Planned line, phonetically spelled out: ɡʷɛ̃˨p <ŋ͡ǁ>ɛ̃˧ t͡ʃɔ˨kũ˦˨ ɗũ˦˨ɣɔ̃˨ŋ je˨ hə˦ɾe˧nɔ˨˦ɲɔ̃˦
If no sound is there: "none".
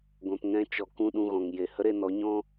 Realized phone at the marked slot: ŋ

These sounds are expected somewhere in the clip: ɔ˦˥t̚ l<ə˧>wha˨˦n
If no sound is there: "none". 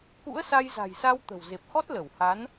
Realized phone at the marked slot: ə˧˩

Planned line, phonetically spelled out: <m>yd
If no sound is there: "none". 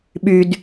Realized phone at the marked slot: ɓ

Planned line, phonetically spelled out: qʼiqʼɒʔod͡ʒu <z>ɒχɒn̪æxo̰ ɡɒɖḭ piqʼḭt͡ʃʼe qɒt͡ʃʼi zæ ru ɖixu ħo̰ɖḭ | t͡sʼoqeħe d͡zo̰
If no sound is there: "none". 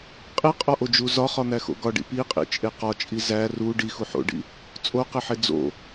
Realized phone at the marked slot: z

